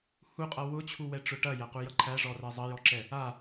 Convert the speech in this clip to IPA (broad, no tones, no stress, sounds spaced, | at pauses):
h u qʼ ʌ w ʊ t͡ɕʰ u w ɛ ʈ͡ʂ ʊ ʈ ɐ j æ q u j ʌ ǃʰ æ ʐ ɔ r æ zˤ ɐ j ɔ ǁ ɛ | a